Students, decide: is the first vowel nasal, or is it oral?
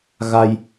oral